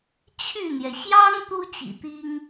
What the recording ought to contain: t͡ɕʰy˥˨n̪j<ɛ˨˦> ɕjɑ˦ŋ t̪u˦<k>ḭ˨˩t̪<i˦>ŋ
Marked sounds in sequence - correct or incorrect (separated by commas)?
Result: incorrect, incorrect, correct